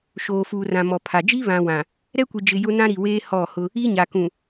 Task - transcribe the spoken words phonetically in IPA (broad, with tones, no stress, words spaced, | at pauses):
ʃoː˨fuː˨rã˨ mɔ˨pʰa˨ d͡ʒi˦βã˨ wã˨ | ɾɛ˦kʷi˨d͡ʒɪ˨ jʊ˦ nã˦ɾi˨weː˦ hɔ˦˨hʊ˦ | i˦ɲa˨ kũ˨